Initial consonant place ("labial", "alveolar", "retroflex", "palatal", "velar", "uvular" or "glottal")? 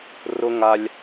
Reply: alveolar